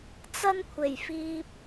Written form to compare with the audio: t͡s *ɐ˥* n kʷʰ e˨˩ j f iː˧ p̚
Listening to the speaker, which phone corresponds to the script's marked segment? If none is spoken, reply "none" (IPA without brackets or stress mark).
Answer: ɐ˥